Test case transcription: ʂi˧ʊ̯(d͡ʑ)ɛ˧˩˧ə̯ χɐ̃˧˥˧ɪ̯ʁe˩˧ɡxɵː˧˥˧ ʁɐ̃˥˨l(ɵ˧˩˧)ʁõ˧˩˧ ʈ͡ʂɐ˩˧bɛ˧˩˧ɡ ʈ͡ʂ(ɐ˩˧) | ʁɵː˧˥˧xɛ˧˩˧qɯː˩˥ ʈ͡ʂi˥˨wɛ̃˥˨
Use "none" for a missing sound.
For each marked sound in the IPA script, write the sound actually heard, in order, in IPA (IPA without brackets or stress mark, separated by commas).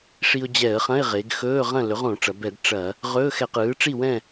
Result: d͡ʑ, ɵ˩˥, ɐ˧˩˧